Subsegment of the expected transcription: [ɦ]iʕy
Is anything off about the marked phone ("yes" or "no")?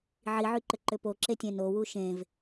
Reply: yes